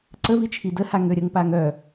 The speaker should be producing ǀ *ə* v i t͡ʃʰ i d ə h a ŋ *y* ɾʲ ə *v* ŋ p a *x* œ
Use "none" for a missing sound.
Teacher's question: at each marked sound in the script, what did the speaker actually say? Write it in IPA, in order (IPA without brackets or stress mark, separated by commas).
ə, ø, none, ŋ